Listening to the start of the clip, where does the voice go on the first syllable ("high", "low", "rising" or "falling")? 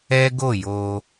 high